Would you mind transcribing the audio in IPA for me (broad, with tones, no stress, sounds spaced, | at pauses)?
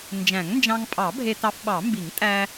n d͡ʒ æ̃˨˩˦ ŋ n d͡ʒ ɑ̃˧ ŋ pʼ ɑ˨˩˦ bʱ e˧ t ɑ˧ f ɓ ɑ˨˩˦ m b i˨˩˦ ŋ tʼ æ˧